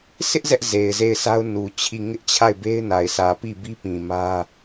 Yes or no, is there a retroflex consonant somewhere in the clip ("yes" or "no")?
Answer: no